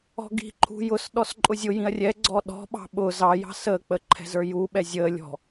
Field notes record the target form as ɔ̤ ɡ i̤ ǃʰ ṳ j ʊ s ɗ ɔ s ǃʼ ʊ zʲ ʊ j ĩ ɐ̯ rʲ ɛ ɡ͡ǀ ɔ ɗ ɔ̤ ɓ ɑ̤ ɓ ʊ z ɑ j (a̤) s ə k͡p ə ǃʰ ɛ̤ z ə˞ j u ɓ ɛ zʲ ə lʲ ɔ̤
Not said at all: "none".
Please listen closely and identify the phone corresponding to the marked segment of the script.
ɑ̤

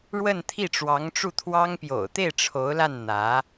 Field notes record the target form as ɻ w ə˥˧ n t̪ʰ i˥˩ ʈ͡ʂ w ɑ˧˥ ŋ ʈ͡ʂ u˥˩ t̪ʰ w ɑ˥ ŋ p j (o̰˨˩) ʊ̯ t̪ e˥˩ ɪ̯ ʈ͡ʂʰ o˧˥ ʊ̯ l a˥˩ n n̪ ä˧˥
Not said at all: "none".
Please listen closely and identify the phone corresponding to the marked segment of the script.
o̰˨˩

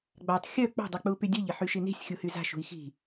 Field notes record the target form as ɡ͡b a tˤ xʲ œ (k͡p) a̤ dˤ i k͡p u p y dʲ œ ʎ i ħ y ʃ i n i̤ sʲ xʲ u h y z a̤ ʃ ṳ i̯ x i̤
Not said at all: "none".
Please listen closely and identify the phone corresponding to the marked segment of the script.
k͡p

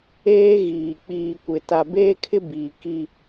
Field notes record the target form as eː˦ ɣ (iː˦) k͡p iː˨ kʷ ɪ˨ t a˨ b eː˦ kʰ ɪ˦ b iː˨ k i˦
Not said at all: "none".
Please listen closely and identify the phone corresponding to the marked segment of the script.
iː˨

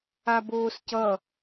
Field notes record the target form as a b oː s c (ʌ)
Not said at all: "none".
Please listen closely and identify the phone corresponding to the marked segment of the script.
ʌ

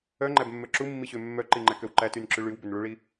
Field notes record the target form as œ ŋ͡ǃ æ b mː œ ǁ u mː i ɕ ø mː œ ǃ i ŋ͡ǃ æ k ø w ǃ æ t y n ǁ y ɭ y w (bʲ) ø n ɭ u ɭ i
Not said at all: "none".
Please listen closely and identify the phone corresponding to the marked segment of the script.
b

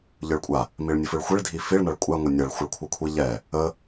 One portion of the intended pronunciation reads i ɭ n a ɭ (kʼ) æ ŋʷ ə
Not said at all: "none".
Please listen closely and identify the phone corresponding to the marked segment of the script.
kʷʼ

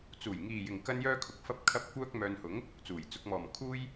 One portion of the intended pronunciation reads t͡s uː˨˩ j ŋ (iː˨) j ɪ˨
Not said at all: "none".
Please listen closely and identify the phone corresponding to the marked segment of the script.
iː˨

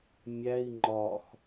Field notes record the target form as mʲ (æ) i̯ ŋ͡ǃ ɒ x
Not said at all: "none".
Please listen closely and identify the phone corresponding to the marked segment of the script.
æ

